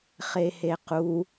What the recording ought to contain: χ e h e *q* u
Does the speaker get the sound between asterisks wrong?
no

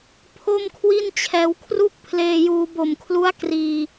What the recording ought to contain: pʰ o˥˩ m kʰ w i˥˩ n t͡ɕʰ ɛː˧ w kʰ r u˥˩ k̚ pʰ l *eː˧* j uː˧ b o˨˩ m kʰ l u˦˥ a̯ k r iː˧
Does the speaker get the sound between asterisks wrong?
no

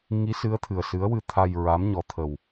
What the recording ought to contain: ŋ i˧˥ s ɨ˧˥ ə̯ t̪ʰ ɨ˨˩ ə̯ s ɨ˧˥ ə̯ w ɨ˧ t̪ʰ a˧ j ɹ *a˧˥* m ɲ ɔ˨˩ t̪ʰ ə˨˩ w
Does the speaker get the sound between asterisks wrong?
no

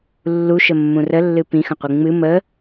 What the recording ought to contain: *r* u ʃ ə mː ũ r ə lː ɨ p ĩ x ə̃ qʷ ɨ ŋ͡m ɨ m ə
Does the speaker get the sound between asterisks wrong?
yes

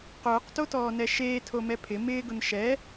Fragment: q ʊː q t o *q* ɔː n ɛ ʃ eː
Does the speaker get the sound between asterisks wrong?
yes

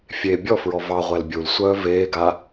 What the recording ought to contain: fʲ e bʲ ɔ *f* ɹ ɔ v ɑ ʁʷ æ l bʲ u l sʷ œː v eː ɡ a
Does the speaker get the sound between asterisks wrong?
no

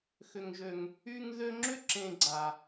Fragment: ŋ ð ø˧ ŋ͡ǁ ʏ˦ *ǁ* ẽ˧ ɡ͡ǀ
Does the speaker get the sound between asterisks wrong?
no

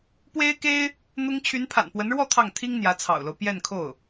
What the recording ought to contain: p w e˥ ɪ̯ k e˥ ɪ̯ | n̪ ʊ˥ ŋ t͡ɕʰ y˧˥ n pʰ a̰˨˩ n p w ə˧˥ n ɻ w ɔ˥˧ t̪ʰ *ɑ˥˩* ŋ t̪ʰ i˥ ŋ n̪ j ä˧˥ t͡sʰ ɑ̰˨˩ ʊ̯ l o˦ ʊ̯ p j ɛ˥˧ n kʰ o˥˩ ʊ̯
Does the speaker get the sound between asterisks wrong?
no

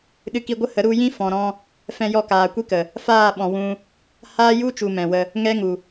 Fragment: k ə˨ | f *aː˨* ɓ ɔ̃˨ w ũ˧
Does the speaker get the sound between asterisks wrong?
yes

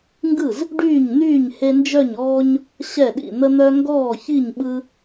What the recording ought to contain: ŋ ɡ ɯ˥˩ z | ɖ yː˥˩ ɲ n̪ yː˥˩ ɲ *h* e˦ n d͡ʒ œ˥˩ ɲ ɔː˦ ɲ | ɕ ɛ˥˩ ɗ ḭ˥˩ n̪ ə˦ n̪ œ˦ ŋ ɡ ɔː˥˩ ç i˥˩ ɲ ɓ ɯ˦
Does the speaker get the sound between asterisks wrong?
no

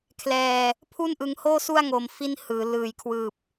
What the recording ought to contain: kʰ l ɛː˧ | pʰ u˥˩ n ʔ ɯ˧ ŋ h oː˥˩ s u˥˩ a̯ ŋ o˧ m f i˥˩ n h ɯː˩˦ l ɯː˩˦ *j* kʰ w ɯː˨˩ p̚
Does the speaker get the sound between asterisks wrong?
no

